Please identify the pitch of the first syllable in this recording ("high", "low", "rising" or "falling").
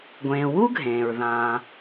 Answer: low